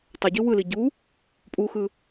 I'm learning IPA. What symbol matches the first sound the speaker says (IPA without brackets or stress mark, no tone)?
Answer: tˤ